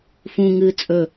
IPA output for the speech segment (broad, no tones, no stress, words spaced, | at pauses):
fũŋɨː t͡sʼɵ